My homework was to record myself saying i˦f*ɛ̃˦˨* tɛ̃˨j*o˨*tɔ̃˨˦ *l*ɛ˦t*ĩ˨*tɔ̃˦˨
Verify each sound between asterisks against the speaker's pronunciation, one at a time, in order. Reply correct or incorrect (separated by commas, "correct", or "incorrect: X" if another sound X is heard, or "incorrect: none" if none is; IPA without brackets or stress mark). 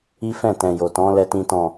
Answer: correct, correct, correct, incorrect: ĩ˦